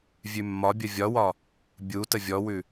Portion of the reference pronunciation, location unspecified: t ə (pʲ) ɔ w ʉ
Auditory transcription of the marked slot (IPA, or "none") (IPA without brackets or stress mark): vʲ